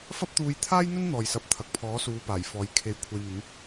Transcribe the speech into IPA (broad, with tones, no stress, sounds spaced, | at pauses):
f ɐ˥ p̚ t̪ uː˧ j t̪ʰ aː˥ j n̪ ɵ˥ n n̪ ɔː˧ j s ɐ˧ p̚ t̪ʰ ɐ˨ k̚ pʰ ɔː˨˥ s uː˨˧ p aː˨˩ j f ɔː˨˥ j kʰ e˨˧ j kʷʰ e˨ j n̪ ɪ˨˥ ŋ